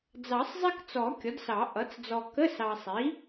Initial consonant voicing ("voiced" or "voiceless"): voiced